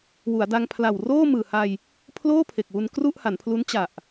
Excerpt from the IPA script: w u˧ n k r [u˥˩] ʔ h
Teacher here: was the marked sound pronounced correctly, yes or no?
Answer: yes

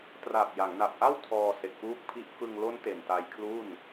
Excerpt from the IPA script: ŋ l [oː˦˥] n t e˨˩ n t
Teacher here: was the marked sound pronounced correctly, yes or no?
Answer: no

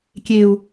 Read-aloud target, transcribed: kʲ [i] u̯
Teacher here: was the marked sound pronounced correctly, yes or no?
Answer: no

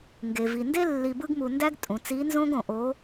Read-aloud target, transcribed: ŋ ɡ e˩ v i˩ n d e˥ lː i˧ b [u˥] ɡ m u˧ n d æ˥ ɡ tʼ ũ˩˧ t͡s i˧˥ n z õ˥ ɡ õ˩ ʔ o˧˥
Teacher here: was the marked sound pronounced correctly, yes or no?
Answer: no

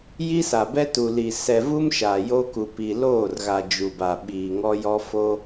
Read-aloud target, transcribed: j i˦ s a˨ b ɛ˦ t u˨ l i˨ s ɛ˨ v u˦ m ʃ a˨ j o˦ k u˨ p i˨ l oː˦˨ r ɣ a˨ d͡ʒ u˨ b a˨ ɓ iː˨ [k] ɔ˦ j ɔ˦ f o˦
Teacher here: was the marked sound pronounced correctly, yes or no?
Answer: no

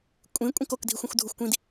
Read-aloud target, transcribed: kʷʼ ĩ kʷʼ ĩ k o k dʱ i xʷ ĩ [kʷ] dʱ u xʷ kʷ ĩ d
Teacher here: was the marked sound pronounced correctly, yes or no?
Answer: no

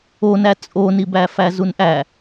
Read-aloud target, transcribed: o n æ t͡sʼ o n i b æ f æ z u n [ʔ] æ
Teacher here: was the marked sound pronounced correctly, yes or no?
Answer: yes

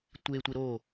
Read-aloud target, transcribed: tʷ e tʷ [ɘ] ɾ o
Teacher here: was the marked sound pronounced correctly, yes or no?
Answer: no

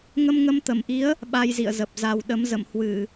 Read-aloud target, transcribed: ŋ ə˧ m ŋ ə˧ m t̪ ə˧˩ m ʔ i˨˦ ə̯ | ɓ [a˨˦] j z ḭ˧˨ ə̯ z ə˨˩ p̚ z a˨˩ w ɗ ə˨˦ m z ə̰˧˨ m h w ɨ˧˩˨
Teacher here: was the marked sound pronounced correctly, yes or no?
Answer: no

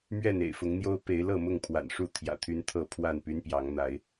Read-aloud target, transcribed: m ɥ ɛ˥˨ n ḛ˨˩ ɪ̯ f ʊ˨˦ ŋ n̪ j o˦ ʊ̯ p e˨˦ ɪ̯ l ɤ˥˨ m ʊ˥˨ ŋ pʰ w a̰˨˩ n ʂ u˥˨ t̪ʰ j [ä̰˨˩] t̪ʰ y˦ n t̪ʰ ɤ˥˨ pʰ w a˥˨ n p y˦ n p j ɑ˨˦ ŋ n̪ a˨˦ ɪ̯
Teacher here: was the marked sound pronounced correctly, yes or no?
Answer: yes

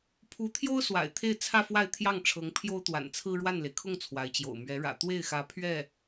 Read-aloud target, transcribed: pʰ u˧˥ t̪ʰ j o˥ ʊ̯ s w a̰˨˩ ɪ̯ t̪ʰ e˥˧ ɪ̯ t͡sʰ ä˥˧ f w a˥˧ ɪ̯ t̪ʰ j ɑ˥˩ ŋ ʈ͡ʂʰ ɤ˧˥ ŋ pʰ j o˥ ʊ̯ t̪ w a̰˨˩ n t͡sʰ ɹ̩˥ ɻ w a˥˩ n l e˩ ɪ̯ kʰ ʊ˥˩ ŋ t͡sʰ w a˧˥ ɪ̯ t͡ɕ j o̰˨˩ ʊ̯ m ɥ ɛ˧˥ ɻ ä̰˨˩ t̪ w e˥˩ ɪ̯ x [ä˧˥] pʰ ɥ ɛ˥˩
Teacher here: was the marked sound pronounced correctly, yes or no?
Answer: yes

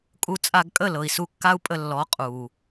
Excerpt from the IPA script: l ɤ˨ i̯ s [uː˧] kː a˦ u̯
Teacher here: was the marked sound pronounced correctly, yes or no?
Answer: no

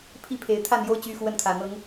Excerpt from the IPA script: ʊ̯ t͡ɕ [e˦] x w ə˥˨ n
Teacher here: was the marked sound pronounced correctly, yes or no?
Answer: no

